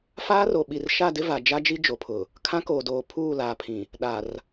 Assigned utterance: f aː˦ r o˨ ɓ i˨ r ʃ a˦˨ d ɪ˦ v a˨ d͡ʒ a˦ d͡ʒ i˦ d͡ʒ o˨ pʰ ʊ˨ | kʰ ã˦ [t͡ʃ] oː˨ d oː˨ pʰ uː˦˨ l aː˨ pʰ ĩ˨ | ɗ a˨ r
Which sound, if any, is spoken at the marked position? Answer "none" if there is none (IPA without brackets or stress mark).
k